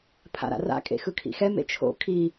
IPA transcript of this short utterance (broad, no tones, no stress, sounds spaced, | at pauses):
pʰ a̰ ɾ a̰ r a̰ kʼ ḛ x ɯ kʰ ḭ x ɛ m ḛ t͡ʃʰ o̰ kʰ i